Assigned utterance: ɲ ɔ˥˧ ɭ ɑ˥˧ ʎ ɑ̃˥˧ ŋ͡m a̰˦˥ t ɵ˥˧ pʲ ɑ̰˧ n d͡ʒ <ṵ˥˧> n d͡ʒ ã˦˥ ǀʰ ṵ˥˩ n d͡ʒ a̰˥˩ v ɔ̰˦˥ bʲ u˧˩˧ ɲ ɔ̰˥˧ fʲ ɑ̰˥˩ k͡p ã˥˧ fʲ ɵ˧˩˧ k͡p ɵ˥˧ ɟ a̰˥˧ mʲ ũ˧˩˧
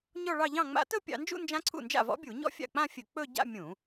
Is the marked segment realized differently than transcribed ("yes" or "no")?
no